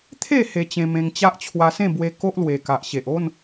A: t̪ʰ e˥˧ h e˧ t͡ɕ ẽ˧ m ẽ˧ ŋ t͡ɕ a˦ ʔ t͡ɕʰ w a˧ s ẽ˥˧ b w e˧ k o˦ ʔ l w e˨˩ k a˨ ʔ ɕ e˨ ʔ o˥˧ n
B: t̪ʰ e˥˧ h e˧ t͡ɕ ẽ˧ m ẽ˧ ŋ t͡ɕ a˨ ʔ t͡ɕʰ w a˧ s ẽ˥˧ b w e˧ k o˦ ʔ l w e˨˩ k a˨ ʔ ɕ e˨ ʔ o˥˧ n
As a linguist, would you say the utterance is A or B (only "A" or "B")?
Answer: A